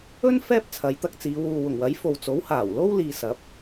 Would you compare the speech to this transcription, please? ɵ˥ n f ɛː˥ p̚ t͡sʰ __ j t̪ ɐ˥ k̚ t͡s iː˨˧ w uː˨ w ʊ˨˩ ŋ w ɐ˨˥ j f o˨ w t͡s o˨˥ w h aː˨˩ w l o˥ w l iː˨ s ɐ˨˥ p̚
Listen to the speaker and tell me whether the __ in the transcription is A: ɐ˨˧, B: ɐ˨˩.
A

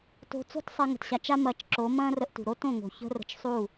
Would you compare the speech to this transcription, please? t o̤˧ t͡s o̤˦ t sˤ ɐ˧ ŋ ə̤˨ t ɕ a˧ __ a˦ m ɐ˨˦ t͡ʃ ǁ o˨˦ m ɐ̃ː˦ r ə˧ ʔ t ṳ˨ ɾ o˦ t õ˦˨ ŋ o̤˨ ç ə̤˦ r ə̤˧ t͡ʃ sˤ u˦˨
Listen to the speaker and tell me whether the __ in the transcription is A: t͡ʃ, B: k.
A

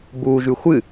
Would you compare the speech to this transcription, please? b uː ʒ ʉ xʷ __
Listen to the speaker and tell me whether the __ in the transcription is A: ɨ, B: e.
A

